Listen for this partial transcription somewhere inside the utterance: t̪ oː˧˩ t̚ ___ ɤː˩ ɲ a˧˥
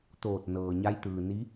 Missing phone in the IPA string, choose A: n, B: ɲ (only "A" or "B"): A